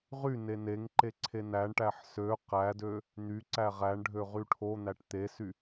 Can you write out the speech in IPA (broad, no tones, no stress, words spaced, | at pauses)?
ʁy neneŋǃe ǀʰenæɳʈæħ sø qædø | n̪yǀæ ʁæɳɖʱø ʁyʈʰon̪æʈ t̪esy